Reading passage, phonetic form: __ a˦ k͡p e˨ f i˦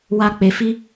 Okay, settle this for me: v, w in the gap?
w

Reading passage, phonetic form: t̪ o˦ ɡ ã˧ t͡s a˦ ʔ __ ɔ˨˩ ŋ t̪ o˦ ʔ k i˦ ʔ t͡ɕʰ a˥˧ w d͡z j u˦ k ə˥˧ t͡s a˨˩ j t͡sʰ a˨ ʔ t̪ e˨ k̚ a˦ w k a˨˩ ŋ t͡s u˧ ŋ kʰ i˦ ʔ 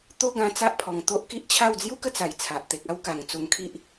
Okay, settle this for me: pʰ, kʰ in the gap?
pʰ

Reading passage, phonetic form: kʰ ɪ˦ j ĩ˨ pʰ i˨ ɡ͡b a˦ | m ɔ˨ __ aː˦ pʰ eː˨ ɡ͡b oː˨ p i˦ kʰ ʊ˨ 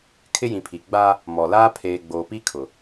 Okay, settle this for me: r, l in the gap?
l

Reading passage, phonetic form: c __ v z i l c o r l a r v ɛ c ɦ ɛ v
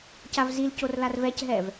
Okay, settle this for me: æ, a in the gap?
a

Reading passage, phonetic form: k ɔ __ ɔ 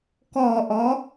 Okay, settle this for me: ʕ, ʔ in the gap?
ʔ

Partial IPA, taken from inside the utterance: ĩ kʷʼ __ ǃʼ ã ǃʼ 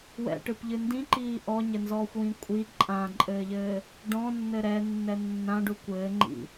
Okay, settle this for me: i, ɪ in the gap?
i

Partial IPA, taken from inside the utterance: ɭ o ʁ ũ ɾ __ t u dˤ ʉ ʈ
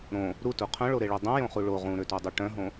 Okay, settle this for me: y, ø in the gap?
ø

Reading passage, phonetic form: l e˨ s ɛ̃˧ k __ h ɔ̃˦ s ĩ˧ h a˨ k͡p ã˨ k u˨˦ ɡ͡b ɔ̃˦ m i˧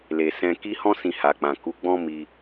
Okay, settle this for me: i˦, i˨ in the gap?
i˦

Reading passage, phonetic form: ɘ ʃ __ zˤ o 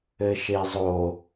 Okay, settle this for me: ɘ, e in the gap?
e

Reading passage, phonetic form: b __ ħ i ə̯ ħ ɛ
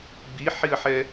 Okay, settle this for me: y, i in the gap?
i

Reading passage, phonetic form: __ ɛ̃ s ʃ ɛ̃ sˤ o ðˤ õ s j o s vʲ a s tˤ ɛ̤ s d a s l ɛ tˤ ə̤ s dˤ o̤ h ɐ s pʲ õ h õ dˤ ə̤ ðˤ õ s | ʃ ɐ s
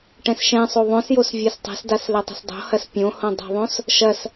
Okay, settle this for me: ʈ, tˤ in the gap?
ʈ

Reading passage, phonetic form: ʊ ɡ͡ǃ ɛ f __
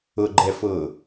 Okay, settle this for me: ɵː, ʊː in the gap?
ʊː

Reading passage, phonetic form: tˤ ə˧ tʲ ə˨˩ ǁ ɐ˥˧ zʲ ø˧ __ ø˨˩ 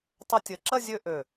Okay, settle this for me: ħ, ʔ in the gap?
ʔ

